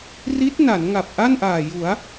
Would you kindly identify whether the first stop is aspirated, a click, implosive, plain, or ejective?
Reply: plain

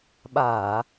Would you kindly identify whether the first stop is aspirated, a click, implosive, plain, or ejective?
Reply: implosive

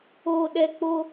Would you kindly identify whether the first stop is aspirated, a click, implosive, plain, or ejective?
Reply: implosive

